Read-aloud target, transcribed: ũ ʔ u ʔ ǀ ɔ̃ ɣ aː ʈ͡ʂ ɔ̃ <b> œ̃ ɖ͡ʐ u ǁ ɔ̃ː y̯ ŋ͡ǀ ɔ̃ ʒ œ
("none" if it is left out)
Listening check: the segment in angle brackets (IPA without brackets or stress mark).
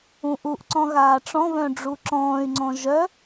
β